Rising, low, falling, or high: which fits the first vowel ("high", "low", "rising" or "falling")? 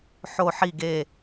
falling